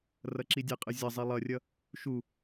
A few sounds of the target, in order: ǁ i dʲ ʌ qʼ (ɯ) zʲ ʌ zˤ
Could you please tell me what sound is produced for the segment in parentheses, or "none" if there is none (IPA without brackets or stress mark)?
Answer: ɯ